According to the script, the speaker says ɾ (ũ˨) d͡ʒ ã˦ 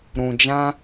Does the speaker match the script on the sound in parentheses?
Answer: yes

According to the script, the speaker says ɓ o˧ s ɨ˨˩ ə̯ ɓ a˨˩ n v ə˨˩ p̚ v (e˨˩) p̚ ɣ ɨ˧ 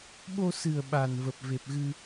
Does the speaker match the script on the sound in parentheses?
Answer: yes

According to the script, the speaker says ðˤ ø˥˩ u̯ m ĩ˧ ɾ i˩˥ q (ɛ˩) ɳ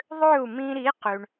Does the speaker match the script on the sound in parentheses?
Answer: no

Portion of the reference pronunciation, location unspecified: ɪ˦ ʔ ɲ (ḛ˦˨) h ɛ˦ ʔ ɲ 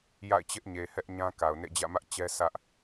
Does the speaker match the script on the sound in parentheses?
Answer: no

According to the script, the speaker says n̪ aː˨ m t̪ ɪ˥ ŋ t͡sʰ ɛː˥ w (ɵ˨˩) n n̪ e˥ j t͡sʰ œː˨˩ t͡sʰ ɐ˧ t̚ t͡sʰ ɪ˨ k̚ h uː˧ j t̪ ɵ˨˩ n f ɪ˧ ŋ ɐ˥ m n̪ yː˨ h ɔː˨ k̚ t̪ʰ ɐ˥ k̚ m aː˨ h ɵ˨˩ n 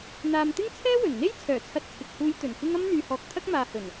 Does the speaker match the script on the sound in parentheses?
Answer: yes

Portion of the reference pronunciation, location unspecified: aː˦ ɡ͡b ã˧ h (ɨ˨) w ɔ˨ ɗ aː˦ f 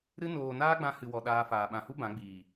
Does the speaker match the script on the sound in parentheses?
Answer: yes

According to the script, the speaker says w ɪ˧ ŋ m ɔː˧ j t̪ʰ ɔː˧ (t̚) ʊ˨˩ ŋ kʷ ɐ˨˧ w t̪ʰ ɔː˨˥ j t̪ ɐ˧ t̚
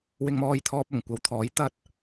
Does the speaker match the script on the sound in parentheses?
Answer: no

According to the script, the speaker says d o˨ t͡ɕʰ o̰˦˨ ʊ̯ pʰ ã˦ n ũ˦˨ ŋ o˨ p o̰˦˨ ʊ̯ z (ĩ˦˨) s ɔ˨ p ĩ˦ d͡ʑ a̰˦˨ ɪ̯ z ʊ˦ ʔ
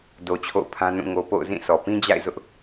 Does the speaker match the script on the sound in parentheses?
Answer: yes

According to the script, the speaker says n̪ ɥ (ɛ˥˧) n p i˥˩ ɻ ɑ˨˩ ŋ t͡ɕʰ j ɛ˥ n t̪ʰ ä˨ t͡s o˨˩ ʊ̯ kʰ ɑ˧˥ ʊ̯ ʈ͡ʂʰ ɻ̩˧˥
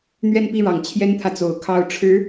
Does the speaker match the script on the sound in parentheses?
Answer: yes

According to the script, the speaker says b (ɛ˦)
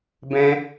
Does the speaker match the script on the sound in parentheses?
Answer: no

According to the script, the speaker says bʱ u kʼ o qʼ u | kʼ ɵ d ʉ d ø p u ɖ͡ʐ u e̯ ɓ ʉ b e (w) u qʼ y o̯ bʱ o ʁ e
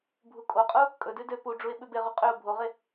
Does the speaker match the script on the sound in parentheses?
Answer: no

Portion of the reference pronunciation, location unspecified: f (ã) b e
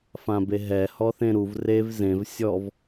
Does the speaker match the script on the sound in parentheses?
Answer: yes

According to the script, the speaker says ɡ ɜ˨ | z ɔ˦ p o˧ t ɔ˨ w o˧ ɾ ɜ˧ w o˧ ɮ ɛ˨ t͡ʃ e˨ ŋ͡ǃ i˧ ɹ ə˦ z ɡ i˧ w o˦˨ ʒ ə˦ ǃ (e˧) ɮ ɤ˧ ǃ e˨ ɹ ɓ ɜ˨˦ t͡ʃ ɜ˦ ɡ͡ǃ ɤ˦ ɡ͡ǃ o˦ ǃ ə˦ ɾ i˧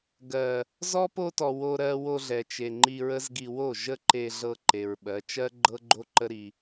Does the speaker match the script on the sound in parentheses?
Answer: yes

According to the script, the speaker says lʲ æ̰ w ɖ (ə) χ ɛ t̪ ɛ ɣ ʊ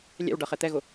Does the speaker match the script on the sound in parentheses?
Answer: no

